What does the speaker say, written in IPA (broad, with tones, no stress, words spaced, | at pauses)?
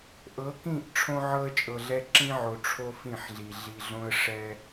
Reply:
ʔɤ˨˦kĩ˦˨ʔ ʈ͡ʂʰõ˦ʕɤ˦ə̯t͡ʃʼɤ˨ɮɛ˦ ǁĩ˦ ʕo˨ʈ͡ʂʰo˦ fĩ˦˨ħɮi˨ ɮi˨ɮõ˦ə̯ʂɛ˦